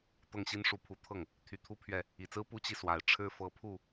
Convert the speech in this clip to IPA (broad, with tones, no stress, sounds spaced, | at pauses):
t̪ ɤ˥˩ ŋ ɕ i˥ n ʂ u˧˥ pʰ u˧˥ t̪ʰ ɤ˥˩ ŋ | t̪ʰ y˧˥ t̪ʰ u˥ pʰ ɥ ɛ˥˩ | i˨˩ t͡s ɹ̩˥ p u˥ t͡ɕ i˨ s w a˨˩ ɪ̯ ʈ͡ʂʰ ɻ̩˥ f ɤ˧˥ pʰ u˥˩